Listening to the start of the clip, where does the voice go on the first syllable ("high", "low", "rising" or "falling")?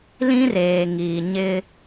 high